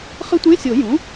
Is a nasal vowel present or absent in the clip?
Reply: present